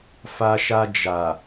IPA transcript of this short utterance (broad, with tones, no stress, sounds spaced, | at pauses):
f a˧ ʃ a˧ d͡ʒ a˨